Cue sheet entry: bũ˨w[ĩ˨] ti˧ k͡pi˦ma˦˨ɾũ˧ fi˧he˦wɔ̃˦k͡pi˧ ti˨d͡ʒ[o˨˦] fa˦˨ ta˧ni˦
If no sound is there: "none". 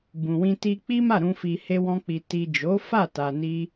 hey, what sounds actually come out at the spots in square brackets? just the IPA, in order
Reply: ĩ˧, o˨˦

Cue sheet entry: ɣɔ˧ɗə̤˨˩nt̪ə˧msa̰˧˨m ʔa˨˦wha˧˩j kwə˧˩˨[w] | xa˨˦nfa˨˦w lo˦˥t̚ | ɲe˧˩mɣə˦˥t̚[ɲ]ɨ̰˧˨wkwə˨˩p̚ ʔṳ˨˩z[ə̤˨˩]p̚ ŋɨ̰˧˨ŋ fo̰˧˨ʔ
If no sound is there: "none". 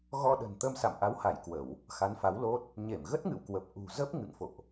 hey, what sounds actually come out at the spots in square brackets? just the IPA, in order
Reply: w, ŋ, ə˦˥

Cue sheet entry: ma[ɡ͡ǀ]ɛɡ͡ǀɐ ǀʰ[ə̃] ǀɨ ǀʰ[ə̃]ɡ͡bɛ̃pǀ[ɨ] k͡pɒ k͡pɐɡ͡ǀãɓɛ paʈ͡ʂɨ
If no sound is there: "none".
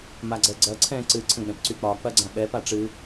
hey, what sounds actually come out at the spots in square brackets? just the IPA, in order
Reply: ɡ͡ǀ, ɛ̃, ə̃, y

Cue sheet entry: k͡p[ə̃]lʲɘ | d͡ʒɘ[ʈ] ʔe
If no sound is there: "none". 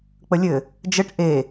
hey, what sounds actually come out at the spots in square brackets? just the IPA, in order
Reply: ə, ʈ

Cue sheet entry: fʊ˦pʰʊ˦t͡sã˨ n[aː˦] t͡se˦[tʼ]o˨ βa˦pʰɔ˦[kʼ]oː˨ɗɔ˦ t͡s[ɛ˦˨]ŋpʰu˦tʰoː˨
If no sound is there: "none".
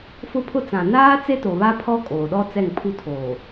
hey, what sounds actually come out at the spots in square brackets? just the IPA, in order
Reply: aː˦, t, kʼ, ɛ˦˨

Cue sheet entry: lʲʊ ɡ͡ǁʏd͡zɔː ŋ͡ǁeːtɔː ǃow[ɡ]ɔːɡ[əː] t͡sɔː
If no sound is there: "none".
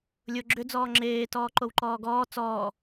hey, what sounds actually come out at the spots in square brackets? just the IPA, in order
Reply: ǃ, ɔː

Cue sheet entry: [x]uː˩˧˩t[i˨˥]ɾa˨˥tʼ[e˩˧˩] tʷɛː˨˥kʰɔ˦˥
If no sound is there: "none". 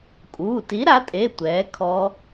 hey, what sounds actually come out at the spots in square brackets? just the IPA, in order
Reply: kʼ, i˨˥, e˩˧˩

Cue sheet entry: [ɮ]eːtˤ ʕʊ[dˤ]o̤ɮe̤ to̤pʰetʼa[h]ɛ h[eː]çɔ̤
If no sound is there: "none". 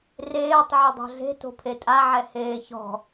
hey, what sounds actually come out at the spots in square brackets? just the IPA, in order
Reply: r, dˤ, ʕ, eː

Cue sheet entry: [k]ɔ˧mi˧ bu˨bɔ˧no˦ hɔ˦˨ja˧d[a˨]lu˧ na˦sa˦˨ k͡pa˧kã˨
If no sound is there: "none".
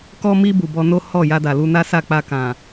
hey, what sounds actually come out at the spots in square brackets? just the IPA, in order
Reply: k, a˨

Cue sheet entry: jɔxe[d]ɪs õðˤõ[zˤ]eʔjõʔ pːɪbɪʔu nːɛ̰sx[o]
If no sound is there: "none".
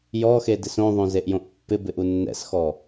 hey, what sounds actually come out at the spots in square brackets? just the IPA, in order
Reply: d, z, ɔ

